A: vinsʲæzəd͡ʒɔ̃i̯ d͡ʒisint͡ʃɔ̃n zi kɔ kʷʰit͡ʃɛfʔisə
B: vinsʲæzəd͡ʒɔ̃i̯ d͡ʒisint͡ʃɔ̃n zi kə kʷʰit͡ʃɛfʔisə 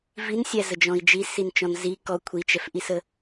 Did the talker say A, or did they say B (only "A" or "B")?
A